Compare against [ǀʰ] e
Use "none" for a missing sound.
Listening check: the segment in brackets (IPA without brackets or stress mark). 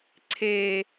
ǀʰ